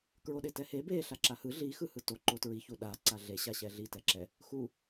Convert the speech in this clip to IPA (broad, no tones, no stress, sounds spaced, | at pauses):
k ɹ o ɗ e t ɛ h e b e ɬ a ǁ a h ɯ ɮ i x ɯ h ɯ t o ǃ o t ɹ i ç u ɗ a ǀ a ɮ e ɕ a ɕ ɛ ɮ i t ɛ ǁ ɛ | x u